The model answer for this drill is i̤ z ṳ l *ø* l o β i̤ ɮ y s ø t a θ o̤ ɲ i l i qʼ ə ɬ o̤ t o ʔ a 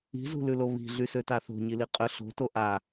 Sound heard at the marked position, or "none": ʉ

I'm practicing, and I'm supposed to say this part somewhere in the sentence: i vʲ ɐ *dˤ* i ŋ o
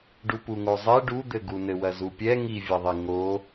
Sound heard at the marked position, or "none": ðˤ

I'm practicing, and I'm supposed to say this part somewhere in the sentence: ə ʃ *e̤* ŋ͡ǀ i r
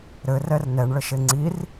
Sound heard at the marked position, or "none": e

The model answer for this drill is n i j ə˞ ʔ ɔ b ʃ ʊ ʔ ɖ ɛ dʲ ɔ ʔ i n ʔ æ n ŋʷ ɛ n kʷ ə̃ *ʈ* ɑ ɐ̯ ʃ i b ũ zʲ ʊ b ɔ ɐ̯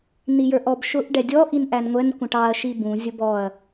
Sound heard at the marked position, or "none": ʈ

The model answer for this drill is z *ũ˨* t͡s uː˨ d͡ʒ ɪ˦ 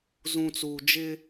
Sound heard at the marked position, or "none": ũ˨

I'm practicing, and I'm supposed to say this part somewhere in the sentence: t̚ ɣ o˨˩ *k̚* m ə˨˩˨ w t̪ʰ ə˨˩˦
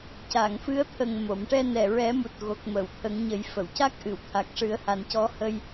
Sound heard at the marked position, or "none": k̚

